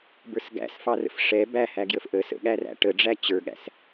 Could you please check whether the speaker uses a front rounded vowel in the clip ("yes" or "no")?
no